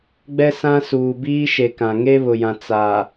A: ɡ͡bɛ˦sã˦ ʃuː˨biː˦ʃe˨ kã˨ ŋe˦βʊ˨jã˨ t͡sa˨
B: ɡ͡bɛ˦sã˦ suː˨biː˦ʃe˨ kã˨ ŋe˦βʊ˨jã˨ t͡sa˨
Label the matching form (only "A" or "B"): B